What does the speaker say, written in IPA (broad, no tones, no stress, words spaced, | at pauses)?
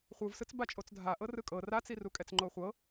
χʷɯvsɯt͡s bat͡ʃʼot͡sdʱaʔɤ rɯkʼɤ rat͡sirukʼɛt͡s ŋ͡ǃoχʷɤ